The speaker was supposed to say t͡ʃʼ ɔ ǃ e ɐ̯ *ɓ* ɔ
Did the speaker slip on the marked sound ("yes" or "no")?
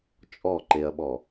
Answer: no